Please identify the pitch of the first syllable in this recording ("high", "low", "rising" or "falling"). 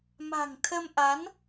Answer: low